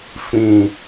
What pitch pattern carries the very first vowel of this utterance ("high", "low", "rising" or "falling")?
low